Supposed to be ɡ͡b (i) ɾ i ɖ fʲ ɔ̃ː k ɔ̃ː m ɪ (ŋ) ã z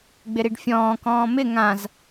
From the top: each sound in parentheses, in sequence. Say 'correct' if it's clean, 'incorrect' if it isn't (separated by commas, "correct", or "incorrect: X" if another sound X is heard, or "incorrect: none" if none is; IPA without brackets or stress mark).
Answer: incorrect: ɪ, correct